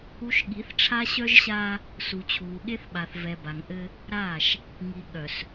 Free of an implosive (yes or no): no